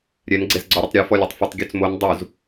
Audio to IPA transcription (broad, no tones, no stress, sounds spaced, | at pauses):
ɾʲ ɛ n ɡ͡ǀ e z ɡ͡ǀ ɔ ɾʲ ə tˤ ɾʲ ɔ f ɔ lʲ e tˤ f ə tˤ ɡʲ o t͡s m o n dˤ u z